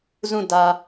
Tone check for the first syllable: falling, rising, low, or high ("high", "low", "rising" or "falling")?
falling